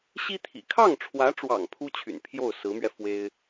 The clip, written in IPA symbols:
ɕ i˥ t̪ʰ ḭ˨˩ kʰ ɑ˥˩ ŋ ʈ͡ʂʰ w ä˧˥ ʈ͡ʂ w ɑ̰˨˩ ŋ pʰ u˥ t͡ɕʰ y̰˨˩ n pʰ j o˥˩ ʊ̯ s ɹ̩˧˥ m ɥ ɛ˧ f w e˥ ɪ̯

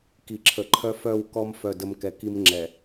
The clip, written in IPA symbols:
k i˨ ǁʰ ə˨ ǃʰ œ˦ f œ˦˨ w k ɔ˦ m f œ˦˨ d ə˦ m k ɛ˨ k i˦ m ŋ͡ǁ ɛ˨

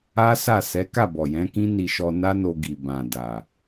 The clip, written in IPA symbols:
a˦ s a˦˨ s ɛ˨˦ k a˦˨ b ɔ˨ j ɛ̃˨˦ k ĩ˦ n i˧ ʃ ɔ˧ n a˦ n o˧ ɡ i˨ b ã˨ d a˨

